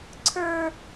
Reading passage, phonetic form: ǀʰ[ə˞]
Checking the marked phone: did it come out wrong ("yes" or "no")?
no